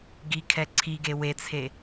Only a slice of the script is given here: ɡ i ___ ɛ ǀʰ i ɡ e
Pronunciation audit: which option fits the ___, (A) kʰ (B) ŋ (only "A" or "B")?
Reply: A